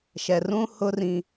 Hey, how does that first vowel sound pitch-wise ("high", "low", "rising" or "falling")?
low